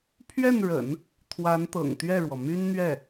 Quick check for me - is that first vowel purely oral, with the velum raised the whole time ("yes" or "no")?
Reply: yes